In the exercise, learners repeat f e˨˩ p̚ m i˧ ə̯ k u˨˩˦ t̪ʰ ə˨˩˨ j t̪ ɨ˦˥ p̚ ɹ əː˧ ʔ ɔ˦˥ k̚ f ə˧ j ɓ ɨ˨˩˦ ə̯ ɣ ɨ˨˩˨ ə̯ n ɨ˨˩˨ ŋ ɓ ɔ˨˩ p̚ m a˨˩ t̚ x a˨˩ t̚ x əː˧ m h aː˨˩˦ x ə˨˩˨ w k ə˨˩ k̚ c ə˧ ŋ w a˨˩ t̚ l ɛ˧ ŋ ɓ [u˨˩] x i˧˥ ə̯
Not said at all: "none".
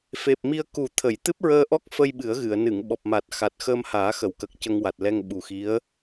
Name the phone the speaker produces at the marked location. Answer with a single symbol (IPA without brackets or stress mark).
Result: u˨˩